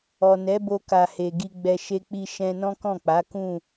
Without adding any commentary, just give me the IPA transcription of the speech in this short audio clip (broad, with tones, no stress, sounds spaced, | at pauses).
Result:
ɔ˨ n ɛ˨˦ b o˧ k a˨ h e˨ ɡ i˧ ɡ͡b ɛ˧ ʃ e˧ k͡p i˧ ʃ ɛ̃˧ n ɔ̃˦ k ɔ̃˦˨ k͡p a˨˦ k ũ˦˨